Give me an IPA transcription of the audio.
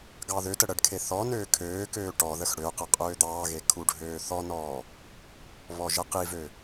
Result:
ɡ ɑ ð ø t ə ɽ ə ɖ kʰ e θ ɔ n øː kʰ øː k øː ʈ ɔ ð ə x ɽ ø q ə qʼ øː d̪ ɑː ɣ e kʰ u ɖʱ øː θ ɔ n ɔː | β ɔ ʒ ə q i v ø

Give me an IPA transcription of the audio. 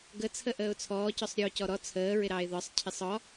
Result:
ɡ ə t͡sʰ ə ʔ əː ʊ̯ t͡sʰ ɔː c ɔ sˤ ɾʲ ɔː c ɔ ɾ ɔ t͡sʰ əː ɹ ɪ ɾ ɑː ɪ̯ ð ɒ sˤ cʰ ɪ sˤ ɒ

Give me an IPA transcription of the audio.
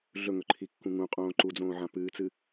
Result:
ɮ ɵ ŋ ɵ ǃʰ i kː ũ ŋ ũ qʼ õː ǃ u d͡z õː ʕ ã p ɨː t͡s ɨ

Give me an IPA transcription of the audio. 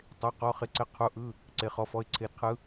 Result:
tˤ e˩˧˩ q ɔ˩˧˩ χ ɪ˩˧ ǀ ɪ˩˧˩ qʰ u˩˧ ʔ ɯ˩˧˩ | ǀ e˩˧ χ ɔ˩˧ f ɔ˩˧˩ ɪ̯ ǀʰ e˩˧ d qʰ ɯ˩˧

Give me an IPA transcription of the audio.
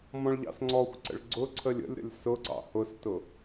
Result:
m ɔ̃ ɭ ʎ ɑ̰ s ŋ͡ǀ ɔ xʷ ǀ ə̰ ɭ ɡ͡ǀ ʊ ǀʰ ə lʲ ə̰ lʲ ɾ ə̰ lʲ s ʊ ǀ ɑ̰ h ʊ s t ʊ

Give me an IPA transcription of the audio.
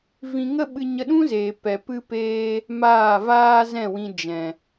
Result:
v ĩ˧ ŋ ə˦ ɓ ɨ˧ ɲ ə˧ ɗ ũ˦ z eː˨ p ɛ˨ p ɨ˧ p eː˧ | m aː˦˨ v aː˦ z ɛ̃˦˨ w ĩ˧ d͡ʒ ɛ̃˨

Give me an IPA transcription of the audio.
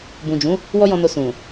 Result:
b ũ˨ d͡ʒ ũ˨˦ | w ɔ˦ j ɔ̃˧ n o˧ s ũ˨

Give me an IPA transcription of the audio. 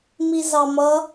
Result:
m i z ɑ m ʌ

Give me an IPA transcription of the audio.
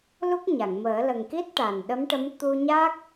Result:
l u˦˥ k̚ ɲ a˨˩˨ ŋ m əː˨˩˦ l ə˨˩ ŋ k i˦˥ t̚ ʈ a˨˩ n ɗ ə˧˥ m ʈ ə˧˥ m t̪ u˧ ɲ a˦˥ k̚

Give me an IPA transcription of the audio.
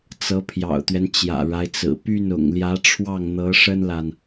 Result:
t͡s ɤ˧˥ pʰ j ɑ̰˨˩ ʊ̯ t̪ ɥ ɛ˦ n t͡ɕ j ä̰˨˩ ɻ a˦ ɪ̯ t͡s ɹ̩˨˩ p y˥˩ n ʊ̰˨˩ ŋ l j ä˧˥ ʈ͡ʂʰ w ɑ˥˩ ŋ n̪ ɤ˧˥ ʂ ə˥ n l a˨ n

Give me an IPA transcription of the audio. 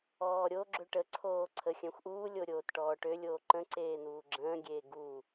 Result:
ɔː ɾʲ o ɡ͡ǁ ø ʈ ə ǀʰ oː ǀʰ ə xʲ œ̃ xʷ ʔ uː lʲ o ɾʲ oː t ʈ ɔː ʈ ø lʲ oː ǃ ə̃ ǀ eː n̪ uː ɡ͡ǁ ə̃ː ɡʲ eː ɡ u

